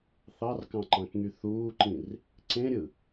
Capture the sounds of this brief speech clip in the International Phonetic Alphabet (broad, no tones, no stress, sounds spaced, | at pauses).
θ ɑ r k ɑ̃ ǃ ɑ̃ k ŋ y θ uː ǃ ĩ r | ǀ ẽ ɾʲ ɯ